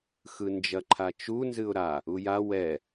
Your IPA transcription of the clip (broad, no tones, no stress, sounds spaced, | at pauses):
x ɯ n d͡ʒ ɐ ǃʰ a t͡ʃ u n z ɨ ʊ̯ ɾ a | u j a w ɛ